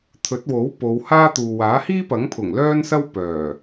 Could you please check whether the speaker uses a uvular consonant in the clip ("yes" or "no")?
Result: no